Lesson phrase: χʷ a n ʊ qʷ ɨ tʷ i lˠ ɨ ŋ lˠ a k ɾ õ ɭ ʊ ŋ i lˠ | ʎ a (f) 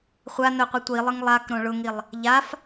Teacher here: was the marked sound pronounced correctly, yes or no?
yes